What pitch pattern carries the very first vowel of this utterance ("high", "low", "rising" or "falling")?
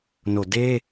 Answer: low